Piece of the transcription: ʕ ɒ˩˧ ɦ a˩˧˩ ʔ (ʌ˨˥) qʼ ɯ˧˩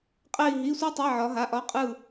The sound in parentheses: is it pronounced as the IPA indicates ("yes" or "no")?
no